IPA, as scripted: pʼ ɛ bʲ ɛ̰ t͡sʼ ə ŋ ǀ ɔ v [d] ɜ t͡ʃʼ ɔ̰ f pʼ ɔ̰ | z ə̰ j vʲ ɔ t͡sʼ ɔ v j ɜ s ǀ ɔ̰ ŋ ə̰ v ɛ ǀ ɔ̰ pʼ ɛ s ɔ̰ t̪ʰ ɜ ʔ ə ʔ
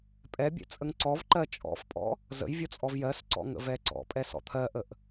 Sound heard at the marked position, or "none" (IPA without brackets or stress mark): ǃ